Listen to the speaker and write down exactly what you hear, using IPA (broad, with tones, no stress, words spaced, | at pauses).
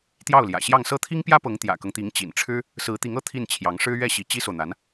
t̪jɑ˥˩ʊ̯ljä̰˨˩ɕjɑ˥˧ŋ sɤ˥˩t̪ʰi˥ŋpjä˥pɤ˧˥ŋ t̪jä̰˨˩kɤ˦ŋt̪i˧˥ŋ t͡ɕḭ˨˩nʈ͡ʂʰɻ̩˥ | sɹ̩˧˥t̪i˧˥ŋɤ˥˧ t̪ʰi˥˩nt͡ɕʰjɑ˧˥ŋʂɻ̩˥ ɥɛ˥˩ɕi˧˥ t͡ɕi˥so˨ʊ̯n̪a˧˥n